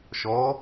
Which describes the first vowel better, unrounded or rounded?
rounded